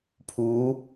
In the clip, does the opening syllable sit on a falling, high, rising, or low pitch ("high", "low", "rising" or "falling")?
rising